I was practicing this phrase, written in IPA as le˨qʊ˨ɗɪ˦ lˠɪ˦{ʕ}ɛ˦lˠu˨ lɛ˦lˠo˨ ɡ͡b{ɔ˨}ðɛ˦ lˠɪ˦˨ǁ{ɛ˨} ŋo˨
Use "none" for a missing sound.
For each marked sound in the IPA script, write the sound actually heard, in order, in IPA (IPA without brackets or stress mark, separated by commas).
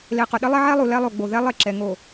ʕ, o˨, ɛ˨